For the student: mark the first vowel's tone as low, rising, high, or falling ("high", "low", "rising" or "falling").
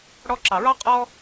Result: high